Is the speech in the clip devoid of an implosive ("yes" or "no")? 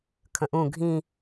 yes